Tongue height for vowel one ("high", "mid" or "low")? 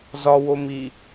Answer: low